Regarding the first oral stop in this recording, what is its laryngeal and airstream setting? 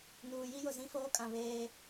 ejective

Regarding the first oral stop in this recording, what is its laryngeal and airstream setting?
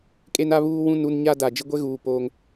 ejective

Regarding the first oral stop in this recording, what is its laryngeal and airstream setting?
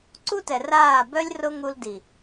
click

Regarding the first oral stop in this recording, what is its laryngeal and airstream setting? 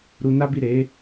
plain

